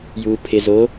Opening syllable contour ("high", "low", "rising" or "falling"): low